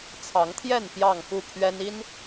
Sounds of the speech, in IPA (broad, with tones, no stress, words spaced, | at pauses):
t͡sʰɑ˨˦ŋt̪ʰjɛ˥˨n pjɑ˥˨ŋxu˥˨pʰɥɛ˦n i˦n